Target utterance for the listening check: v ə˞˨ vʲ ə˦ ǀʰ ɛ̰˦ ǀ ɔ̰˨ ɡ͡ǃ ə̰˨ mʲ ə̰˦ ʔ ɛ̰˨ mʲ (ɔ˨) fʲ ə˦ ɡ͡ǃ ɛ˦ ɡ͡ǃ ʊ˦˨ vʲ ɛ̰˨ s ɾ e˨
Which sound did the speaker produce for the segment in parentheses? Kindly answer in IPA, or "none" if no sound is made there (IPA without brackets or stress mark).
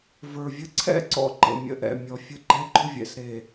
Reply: ɔ˨